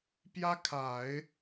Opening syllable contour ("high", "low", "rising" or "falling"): high